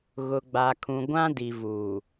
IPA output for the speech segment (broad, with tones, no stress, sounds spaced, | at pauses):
ɣ ʊ˨ ɡ͡b a˨ kʰ ũ˨ ɡʷ ã˦ d i˨ v uː˨